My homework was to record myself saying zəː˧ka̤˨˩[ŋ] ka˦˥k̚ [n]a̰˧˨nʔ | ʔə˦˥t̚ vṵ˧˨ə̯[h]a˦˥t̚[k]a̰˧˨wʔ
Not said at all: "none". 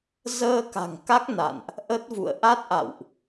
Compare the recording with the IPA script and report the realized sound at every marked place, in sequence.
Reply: ŋ, n, ʔ, ʔ

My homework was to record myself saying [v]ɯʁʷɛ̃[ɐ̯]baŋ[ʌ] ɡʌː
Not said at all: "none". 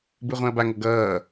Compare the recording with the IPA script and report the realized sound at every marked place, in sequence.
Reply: b, ɐ̯, ʌ

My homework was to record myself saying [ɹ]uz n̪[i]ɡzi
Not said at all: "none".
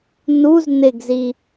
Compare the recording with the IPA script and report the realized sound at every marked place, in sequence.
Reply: n, ɪ

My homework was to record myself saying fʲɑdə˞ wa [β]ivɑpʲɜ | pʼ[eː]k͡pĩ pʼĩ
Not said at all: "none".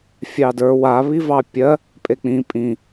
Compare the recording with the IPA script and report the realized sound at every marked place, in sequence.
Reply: β, e

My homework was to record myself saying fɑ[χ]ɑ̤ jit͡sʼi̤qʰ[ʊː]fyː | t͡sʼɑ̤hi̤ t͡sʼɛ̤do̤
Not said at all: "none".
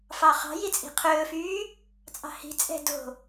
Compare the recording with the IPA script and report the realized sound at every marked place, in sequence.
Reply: χ, ɵː

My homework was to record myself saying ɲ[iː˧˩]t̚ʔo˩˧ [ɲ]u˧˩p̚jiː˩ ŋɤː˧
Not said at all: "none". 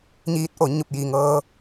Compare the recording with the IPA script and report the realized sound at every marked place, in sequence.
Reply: iː˧˥, ɲ

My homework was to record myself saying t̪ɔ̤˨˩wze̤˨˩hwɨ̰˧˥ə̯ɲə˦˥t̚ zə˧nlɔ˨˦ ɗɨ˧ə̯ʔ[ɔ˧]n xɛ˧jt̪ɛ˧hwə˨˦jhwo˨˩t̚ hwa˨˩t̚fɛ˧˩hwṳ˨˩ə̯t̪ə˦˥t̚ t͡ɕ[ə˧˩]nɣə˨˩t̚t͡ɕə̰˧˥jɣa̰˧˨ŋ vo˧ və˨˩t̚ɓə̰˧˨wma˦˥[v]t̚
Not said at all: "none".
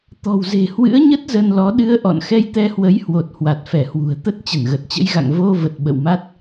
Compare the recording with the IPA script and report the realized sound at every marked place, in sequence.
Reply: ɔ̰˧˨, ə˧˩, none

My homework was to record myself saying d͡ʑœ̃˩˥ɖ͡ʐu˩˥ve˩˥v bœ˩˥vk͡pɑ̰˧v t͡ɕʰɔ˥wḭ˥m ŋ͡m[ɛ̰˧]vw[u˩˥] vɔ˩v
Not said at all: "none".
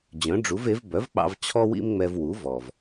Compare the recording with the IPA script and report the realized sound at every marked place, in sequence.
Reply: ɛ˧, u˩˥

